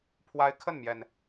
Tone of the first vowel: high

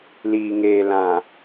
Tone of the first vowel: low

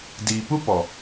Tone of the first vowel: low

